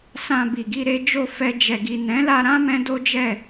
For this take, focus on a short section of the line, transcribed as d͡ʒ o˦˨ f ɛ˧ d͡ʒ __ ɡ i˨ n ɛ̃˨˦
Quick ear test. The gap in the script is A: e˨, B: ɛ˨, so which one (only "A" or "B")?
B